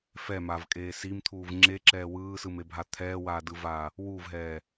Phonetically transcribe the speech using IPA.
f ɛ m a v kʼ eː s i m t̪ʰ uː v ŋ͡ǁ e ǁ ɛː w ɯː s ɯ m e bʱ a t̪ʰ ɛː w aː d ɯ v aː | w u v ɦ ɛː

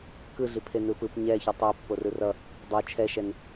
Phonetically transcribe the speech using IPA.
k ɯ ɮ i pʰ e n ɯ p ɯ p ɲ ɛ ç u tˤ ɛ pː o r ɯ r ʌ | dˤ o t͡ʃʰ ɛ ʃ ɛ n

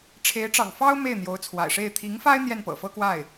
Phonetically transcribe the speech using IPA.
ʈ͡ʂʰ e˧˥ ɪ̯ ʈ͡ʂ ɑ̰˨˩ ŋ f ɑ˥ ʊ̯ m e˥˩ ɪ̯ n̪ j o˧˥ ʊ̯ t͡sʰ w a̰˨˩ ɪ̯ ʂ e˥˩ ɪ̯ t̪ʰ i˧˥ ŋ f a˥ ɪ̯ n̪ j ɛ˥˩ n p ɤ̰˨˩ f ɤ˥ k w a˥˩ ɪ̯

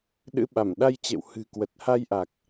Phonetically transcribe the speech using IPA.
ɗ ɨ̰˧˥ ɓ a˧˩ m ɗ a˧ j t͡ɕ ḛ˧˨ w h ɨ̤˨˩ k w ə˨˩ t̚ h a˧ j ʔ a˨˩ k̚

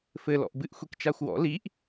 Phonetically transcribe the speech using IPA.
f ɘ l ɔ̰ ʔ b ɨ ʔ xʷ i k t͡ʃ a xʷ w ɔ̰ l i ʔ

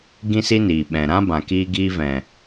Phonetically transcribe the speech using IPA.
ɡ ĩ˦ s i˦ n iː˨ ɓ ɛ̃˨ ɾ ã˦ b ã˨ k iː˧ ɡ iː˧ v ɛ̃˨

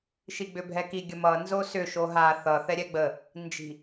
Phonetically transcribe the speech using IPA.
ʃ i ɡ͡b ʏ bʱ ɛ k i ɡʲ ə m ʌ n z o s ʏ ʃ o ɦ a θ ʌ θ ɛ ɾʲ ɛ ɡ͡b ə | n d͡ʒ i̤

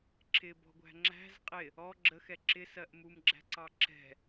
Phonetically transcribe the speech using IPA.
ǁ ɪ b ɔ̤ ɡʷ æ̤ ŋ͡ǁ æ̤ z qʼ ɪ | ɔ ɡ͡ǁ ə x ɛ ǁ ɪ s ɜ ʔ m u m ɡ͡ǁ æ̤ ǀ ɑ ǁ ɛ̤

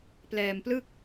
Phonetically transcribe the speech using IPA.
p l ɛː˧ m p l ɯ˥˩ k̚

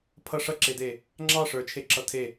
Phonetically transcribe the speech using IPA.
pʰ ʌ ʂ ʌ ǁ e d e | ŋ͡ǁ ɑ ʂ ə˞ t͡ʃʰ e ǁ ʌ tʰ e

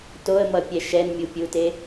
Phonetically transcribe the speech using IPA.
t o ə̯ m ʌ pʲ ɛ ʃ ɛ n mʲ u pʲ u t e

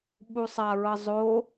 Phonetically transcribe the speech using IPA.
ɓ u sˤ a ɹ ʌ zˤ o

